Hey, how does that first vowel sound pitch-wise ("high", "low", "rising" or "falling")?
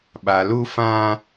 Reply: low